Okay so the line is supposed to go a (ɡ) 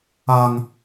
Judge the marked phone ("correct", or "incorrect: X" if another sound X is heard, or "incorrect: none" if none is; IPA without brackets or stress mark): incorrect: ŋ